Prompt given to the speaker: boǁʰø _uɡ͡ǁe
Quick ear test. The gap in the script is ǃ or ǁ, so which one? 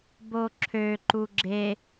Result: ǃ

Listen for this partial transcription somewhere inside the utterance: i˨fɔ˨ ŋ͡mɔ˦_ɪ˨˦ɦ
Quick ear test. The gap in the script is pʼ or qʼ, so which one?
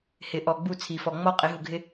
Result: qʼ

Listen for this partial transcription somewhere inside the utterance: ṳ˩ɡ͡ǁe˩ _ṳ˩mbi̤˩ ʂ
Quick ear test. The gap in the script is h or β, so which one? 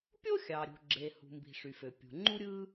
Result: h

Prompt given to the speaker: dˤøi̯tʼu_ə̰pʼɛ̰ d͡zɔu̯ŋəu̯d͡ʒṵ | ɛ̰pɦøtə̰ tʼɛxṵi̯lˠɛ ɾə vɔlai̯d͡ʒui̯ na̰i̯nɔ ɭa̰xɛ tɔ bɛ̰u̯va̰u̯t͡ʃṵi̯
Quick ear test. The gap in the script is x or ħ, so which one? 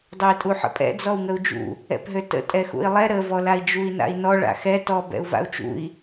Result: ħ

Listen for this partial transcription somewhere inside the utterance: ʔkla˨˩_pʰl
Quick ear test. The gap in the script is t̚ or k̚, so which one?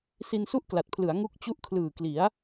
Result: t̚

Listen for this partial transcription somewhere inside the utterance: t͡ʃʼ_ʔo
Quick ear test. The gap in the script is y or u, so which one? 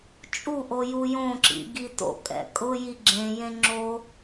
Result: u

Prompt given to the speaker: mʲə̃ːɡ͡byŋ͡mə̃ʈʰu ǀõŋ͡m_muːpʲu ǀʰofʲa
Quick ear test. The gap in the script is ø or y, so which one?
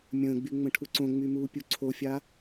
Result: y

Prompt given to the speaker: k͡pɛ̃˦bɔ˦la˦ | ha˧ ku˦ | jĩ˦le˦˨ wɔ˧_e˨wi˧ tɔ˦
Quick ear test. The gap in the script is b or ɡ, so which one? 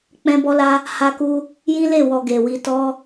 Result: ɡ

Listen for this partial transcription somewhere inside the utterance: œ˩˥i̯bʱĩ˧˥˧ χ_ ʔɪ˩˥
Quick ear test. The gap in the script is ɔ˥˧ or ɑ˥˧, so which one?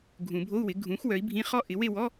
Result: ɔ˥˧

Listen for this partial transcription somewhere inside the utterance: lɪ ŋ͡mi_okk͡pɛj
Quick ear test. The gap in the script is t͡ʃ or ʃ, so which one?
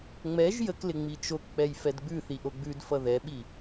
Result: t͡ʃ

